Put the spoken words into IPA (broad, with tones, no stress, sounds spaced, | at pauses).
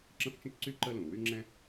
ǁ ə̃˥ f t͡ʃ ə̃˥ t͡ʃ ǀ y˥ ǃ ə˥ l ũ˩ w y˥ ŋ͡ǁ ɛ̃˥